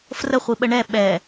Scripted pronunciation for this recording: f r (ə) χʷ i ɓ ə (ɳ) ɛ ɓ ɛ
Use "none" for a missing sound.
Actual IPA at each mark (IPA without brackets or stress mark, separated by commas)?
ə, ɳ